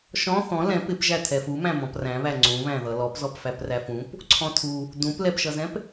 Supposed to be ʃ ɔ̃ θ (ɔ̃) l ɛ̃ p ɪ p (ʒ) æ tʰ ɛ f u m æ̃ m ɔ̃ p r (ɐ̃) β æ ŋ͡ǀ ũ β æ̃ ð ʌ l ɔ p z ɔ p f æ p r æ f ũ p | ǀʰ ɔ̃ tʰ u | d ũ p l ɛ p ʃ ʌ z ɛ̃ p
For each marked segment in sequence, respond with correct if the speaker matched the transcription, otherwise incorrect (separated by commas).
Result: correct, correct, incorrect